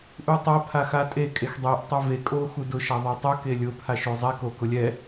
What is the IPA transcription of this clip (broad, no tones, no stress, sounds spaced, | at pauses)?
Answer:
ʔ u tˤ a pʰ a x a tʼ e kʼ e x dˤ e ʔ tˤ ʊ v e kʼ o x u d ʊ ʃ a ðˤ a tˤ ʊ k e lʲ ʊ pʰ a ʃ o zˤ ɛ k o k ʊ lʲ ɛ